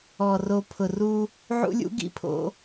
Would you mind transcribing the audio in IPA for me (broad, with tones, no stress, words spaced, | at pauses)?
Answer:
ɔ˨ro˨pʰʊ˨ru˦ | ʕṵ˦lʲṵ˦ɡḭ˦pʰo̰˦